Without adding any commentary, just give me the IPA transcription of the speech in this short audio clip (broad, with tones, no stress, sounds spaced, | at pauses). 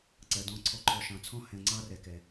ǀ ɜ˨ d ɔ̃˦˨ ǀʰ ɔ˦ ǃʰ ɔ˨ ʃ ɑ̃˨ t͡sʰ ɔ̃˦ h ɛ̃˨ ŋ͡ǀ ɑ˦ r ɛ˨ k ɛ˨